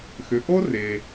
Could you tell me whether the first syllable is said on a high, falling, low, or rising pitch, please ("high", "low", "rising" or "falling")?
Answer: low